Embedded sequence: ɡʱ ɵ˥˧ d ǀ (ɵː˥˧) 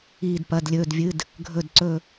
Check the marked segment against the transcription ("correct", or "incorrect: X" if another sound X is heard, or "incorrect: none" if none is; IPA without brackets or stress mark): incorrect: ɵ˥˧